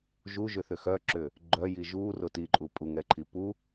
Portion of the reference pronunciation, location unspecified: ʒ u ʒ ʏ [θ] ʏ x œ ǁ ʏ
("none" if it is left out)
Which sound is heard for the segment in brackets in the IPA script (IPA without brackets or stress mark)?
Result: θ